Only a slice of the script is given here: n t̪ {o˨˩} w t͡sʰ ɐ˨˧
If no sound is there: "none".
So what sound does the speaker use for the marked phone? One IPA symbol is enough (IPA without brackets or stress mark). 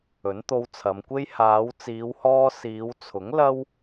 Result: o˧